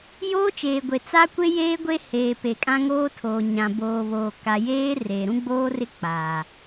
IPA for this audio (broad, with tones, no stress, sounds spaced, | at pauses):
j oː˦ t͡ʃ eː˨ ɡʷ e˨ t͡s a˦ kʷ e˦ j eː˦ ɡʷ e˦ h eː˨ p e˨ kʼ ã˦ ŋ oː˦ tʰ oː˨ ɲ ã˨ b oː˨ β oː˨ k a˨ j eː˦ r e˨ ɾ ũ˦ ɡ͡b oː˦ r ɪ˦ k͡p aː˨